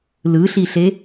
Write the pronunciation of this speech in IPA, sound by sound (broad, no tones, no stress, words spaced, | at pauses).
lɯɬiɬe